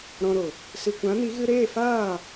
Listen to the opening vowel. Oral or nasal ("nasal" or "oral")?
nasal